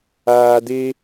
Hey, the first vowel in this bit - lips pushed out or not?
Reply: no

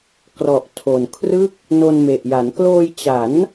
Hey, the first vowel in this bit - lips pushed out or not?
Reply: yes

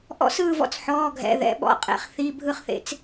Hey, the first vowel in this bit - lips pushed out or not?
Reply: yes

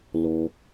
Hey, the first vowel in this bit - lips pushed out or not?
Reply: yes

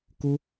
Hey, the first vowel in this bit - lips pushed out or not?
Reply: yes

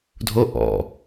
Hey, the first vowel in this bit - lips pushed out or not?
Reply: yes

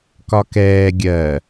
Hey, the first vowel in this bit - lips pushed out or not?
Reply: yes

